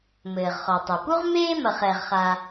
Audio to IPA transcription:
m ɘː˩ ʁ χ ɔ˩ tˤ ɐ˩ p u˥ ʁ m eː˥ m ɐ˩ χ ɛː˩ ʁ χ a˩

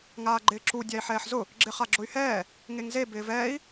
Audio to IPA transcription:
ŋ aː ɡ͡ǃ ɪː ǁ u dʲ a i̯ ħ ɛː ħ z ʊ | ɡ͡ǁ ɪ χ a ɡ͡ǁ ʊ y̯ h ɛː | ŋ e ŋ z e b ɪː v ɛː i̯

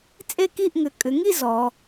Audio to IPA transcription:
t͡sʼ e˥˧ k i˥˧ ʔ ŋ ʏ˩˧ kʼ ʏ˩˧ ŋ i˥˧ z ɔ˩˧

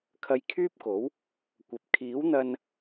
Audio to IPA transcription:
kʰ ɐ˧ j kʰ yː˥ p̚ k o˨˥ w | kʷ ɐ˨ p̚ kʰ iː˨˥ w n̪ ɐ˧ n

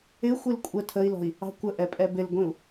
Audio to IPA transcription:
ɪ xʷ i l kʷʼ ə tʰ ə i̯ l ɔ̤ i̯ | ɑ̤ kʷ ə ʔ ɛ pʼ ɛ b ɪ l ɡʷ ĩ u̯

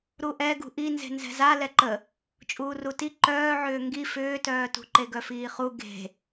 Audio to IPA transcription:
ɾ u ʔ ɛ ɡ ṳ ʔ i n z e̤ n z ɛ̤ z a l ɛ ǃ ə | t͡ʃʼ uː r u t i ǃ œː ʕ ʏː ŋ ɡ i f ʏː t œː t ṳ ǃ e ɡ œ f iː χ u ɡ e̤

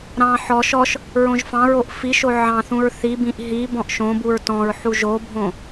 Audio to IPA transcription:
ɾ ɑ̃ ħ ɔ ʃ ɔ ʃ | ɹ õ ʒ f ɑ̃ ɹ o ʔ f i ʃ o ʕ ɑ̃ θ ũ ɹ θ i b ĩ ʔ ɦ i b ɔ̃ ʔ ʃ õ b u ɹ t ɔ̃ ɹ ħ u ʒ o bʱ õ

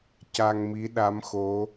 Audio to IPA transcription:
c a˧ ŋ m i˧˥ ɗ a˧˥ m x o˧˥

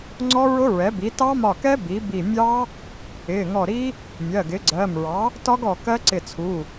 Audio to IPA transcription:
ŋ͡ǀ ɔ˦˥ ɹ ʊ˦˥ ɹ ɛ˩˥ b i˩˥ t ɑ˦˥ m ɒ˧˩ k ɛ˦˥ b i˩˥ b i˧˩ mʲ ɑ˦˥ | ɪː˩˧˩ ŋ ɔ˧˩ ɾ i˦˥ | mʲ ɜ˩˧˩ ɡ ɪː˩˥ ɡ͡ǀ ɜː˩˧˩ m ɹ ɑ˩˥ | t ɒ˦˥ ɡ ɔ˧˩ k ɜ˦˥ ǀ ɪ˧˩ t͡sʰ u˩˧˩

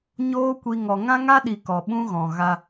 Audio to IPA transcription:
ɲ oː˦ kʷ i˧ ŋ ɔ˨ ŋ ã˦ ŋ a˦ ɗ i˨ k ɔ˨ ɓ ũ˦ ɣ ɔ̃˨ ɣ a˧

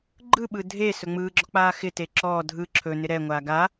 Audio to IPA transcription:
ɡ͡ǃ ɯ ɓ ɯ dʱ e s ɵ ŋ͡m ɯː ɡ͡ǁ ɔ k͡p aː x ɪ t e ǁ ɔː dʱ ɯ ǁʰ ɵ n ɪ ɾ ɛ ŋʷ aː ɡ a

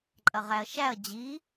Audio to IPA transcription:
ǃʼ ɐ ʁ æ ɐ̯ ʃ æ ɐ̯ d͡ʑ i

